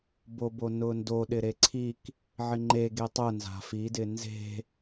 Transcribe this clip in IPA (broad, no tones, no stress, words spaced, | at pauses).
bobonʊndo ɗɪɾeǀʰik | ʕɪŋ͡ǃe ɡetˤʊ nza̤fi dɪnze̤